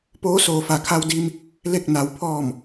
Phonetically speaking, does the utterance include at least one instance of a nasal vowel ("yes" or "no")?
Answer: no